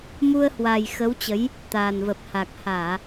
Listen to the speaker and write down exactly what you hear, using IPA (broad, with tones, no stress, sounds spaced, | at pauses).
m u˧ ə̯ h w a˨˩ j x ə˨˦ w t͡ɕ ə˨˦ j | t̪ a˨˩ n v ə˨˩ p̚ h a˨˩ k̚ h aː˧˩˨